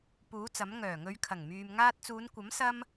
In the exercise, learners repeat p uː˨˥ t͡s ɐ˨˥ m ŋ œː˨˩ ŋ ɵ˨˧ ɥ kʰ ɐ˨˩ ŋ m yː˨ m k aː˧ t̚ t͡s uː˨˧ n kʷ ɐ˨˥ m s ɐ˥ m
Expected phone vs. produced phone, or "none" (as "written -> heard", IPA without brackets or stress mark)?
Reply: k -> ŋ